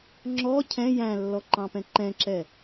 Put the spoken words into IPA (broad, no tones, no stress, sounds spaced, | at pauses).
ŋ͡ǁ ɔ cʰ ɛ̃ j æ̃ lː ɔ ǃ ɑ̃ p ɛ̃ ǃ ɛ̃ ǁ ɛ